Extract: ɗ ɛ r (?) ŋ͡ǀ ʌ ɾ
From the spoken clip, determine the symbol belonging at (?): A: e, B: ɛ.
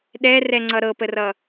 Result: B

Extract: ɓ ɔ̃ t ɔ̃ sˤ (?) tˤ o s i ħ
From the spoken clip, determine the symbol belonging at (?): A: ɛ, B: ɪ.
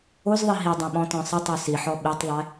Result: B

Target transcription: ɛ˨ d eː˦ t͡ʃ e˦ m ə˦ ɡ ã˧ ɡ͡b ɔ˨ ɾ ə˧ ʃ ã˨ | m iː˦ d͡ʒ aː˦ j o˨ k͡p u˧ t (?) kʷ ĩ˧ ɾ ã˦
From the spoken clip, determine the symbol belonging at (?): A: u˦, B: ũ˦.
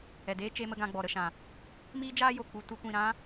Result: A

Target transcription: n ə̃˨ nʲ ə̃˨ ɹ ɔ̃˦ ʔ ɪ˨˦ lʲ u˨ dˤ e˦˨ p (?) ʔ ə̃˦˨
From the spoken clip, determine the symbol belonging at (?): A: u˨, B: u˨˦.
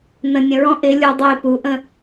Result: B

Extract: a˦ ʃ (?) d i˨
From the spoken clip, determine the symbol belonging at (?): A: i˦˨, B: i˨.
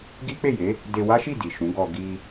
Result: A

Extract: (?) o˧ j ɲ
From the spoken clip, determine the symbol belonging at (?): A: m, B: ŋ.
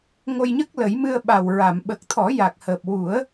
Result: B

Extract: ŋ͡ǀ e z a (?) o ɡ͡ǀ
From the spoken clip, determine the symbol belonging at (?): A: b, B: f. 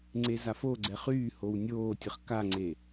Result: B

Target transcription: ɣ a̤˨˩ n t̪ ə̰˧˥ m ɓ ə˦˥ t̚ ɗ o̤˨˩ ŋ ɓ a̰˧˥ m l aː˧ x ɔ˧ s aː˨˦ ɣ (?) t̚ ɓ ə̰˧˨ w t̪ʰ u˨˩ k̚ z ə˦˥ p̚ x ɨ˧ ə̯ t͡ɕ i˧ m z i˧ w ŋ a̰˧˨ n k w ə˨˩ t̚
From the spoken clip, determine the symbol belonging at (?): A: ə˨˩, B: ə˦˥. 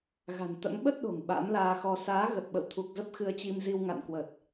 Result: A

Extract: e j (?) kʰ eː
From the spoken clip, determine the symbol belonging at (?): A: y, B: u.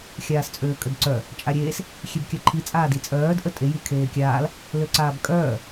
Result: A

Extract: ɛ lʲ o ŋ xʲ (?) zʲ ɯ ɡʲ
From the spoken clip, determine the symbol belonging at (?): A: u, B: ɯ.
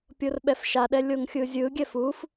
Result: B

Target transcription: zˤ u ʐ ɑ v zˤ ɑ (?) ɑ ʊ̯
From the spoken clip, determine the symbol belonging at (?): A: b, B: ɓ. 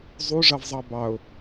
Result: A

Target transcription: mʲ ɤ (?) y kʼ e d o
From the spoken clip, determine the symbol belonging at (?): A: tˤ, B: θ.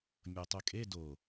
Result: A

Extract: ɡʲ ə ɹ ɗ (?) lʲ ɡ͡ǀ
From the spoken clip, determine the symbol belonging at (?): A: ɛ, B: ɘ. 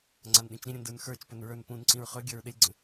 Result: B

